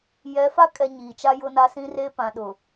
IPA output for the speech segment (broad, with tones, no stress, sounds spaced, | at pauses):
j ɛ˨˦ f a˦ kʼ ɛ˨ ɲ iː˨ t͡ʃ a˦ j ʊ˦ n a˦ s ĩ˦ r e˦ p ã˨ ɗ ʊ˨